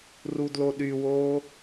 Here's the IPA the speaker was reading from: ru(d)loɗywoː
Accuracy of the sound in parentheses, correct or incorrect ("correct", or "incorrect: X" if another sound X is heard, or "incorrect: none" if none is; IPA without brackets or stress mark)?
correct